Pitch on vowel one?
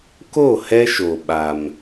falling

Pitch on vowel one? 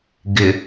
low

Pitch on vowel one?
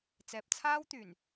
low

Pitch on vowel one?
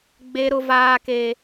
high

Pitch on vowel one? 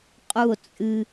falling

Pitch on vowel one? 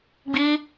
high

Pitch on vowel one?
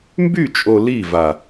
falling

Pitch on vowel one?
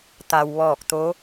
low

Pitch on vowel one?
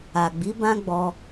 low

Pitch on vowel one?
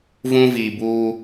high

